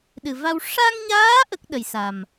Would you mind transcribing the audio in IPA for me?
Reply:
ɗ ɨ˨˩ v a˧ w ʂ a˧ ŋ ɲ aː˧˥ ʔ ə˦˥ k̚ ɗ ə˨˩ j s a˨˩ m

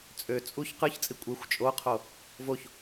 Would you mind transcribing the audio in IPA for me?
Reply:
t͡sʼ ø t͡sʼ u ç q ɯ ç t͡sʼ i kʷʼ e xʷ t͡ʃʼ o qʰ o | v o ç

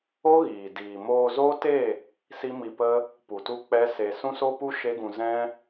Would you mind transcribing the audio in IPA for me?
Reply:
o˦ ɣ iː˨ d iː˨ m oː˧ z oː˦ t e˦˨ | s i˦ m i˧ p ə˦ | p u˨ t u˦ k͡p ɛ˦ s e˧ s ũ˦ s o˦ p u˦ ʃ e˦ ɡ ũ˧ z ɛ̃˦

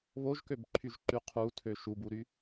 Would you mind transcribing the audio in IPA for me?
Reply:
β o ʒ k ø b ǃʰ y ʒ ǃ y qʰ u tʰ ø ʃ u b u ɾ y

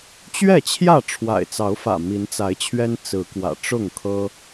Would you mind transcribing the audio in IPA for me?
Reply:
t͡ɕ ɥ ɛ˥˨ t͡ɕʰ j ä˥˨ ʈ͡ʂʰ w a̰˨˩ ɪ̯ t͡s ɑ˨˦ ʊ̯ f ä̰˨˩ m i˨˦ n t͡s a˨˦ ɪ̯ t͡ɕʰ ɥ ɛ˦ n t͡s ɹ̩˨˦ k w ä̰˨˩ ʈ͡ʂ ʊ˥˨ ŋ kʰ ɤ˦

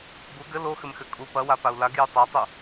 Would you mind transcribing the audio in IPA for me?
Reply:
b u ɡ ɘ l o x ɘ m x ɘ kʼ u p ɐ w a p a u̯ l a ɡ j u tˤ a tˤ u

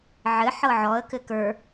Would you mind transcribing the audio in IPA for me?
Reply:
ʕ ɘ ħ ɤ ʕ ɔ ə̯ k ɘ k ə˞

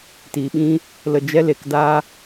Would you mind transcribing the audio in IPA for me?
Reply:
t iː˨ ɓ ĩ˦ | l ə˧ d͡ʒ ɛ˦ l e˨ k d aː˦

